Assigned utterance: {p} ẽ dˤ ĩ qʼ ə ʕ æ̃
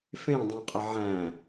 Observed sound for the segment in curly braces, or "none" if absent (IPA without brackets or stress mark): f